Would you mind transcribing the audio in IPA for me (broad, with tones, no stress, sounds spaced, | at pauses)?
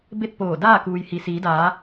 b e˥˨ t̚ p oː˧˩ d aː˥˨ k uː˩ j h i˩ s iː˩˧ d aː˩˧